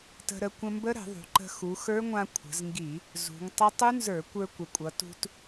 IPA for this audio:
t ə̤˧ ɾ ə˧ kʷ ə̃˧ m b ə˦˥ ɾ ə̤˧˩˧ ðˤ ṳ˩˧ ǃ ə̤˧ x u˩˧ x ə˞˦˥ ŋʷ ã˧ kʷʰ ə̤˩˧ z ŋ ɡ i˧˩˧ | z ṳ˩˧ ŋ tˤ ə˦˥ tˤ u˦˥ n z ə˞˧˩˧ kʷ ə˞˧ kʷ ə˩˧ kʷʼ ʌ˩˧ t ṳ˧ t

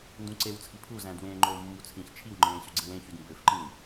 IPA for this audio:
n d ũ ǀ e w t͡sʰ i pʰ u z æ̃ d w ẽː ŋ͡ǃ oː mː u t͡sʰ ĩ ç t͡ʃʰ i w ŋ͡ǃ ẽː ɕ y ɡ͡ǀ ĩ w ẽ ç y d m b ø f ǃ ĩ w

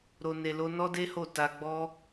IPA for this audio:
ɾ o˧ n e˧ l o˦ n ɔ˦ d e˦ h o˦˨ t a˧ ɡ͡b ɔ˦

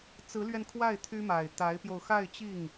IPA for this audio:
t͡s ɹ̩˧˥ l ɥ ɛ˧ n kʰ w a˥˩ ɪ̯ t̪ʰ y˥ m a˨˩ ɪ̯ t̪ a˧˥ ɪ̯ p j o˧ ʊ̯ x a˥˧ ɪ̯ t͡ɕ i˥˩ ŋ

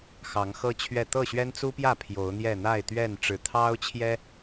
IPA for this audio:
x ɑ˨˦ ŋ x ɤ˦ t͡ɕʰ ɥ ɛ˥˨ t̪ ɤ˥˨ ɕ ɥ ɛ˦ n t͡s u˦ p j ä˥˨ pʰ j o˨˦ ʊ̯ n̪ j ɛ˥˨ n̪ a˥˨ ɪ̯ t̪ ɥ ɛ˥˨ n ʈ͡ʂ ɻ̩˨˩ t̪ʰ ɑ˦ ʊ̯ t͡ɕʰ j ɛ˦

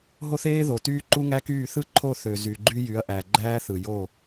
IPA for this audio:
ɦ o˦ θ eː˦ ð o˨ t yː˦ ǃ u˦ ŋ æ˦ k yː˦˨ θ ɯ˦ ǃʰ o˦˨ θ ø˨ z y˨ ɡ͡ǃ y˦ j y˨˦ ɐ̯ ʔ æ˨ ɡ͡ǃ æː˦ θ ɯ˨ j o˦˨

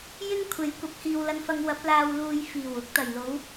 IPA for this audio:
j ɪ˥ ŋ kʷʰ e˨˥ j kʷ ɐ˨˥ p̚ h iː˨ w l ɐ˧ n f ɐ˧ ŋ w ɐ˨˥ p̚ l aː˨ w l uː˨ j f iː˨˩ w ʊ˨˥ k̚ t̪ ɐ˨˩ j l o˨˥ w

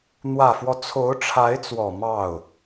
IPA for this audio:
n̪ w ä˨˩ f w ɔ˦ t͡sʰ o˧˥ ʊ̯ ʈ͡ʂʰ a˧˥ ɪ̯ t͡s w ɔ˨˩ m ɑ˥˩ ʊ̯

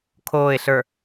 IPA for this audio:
kʰ oː ɪ̯ ɬ ə˞

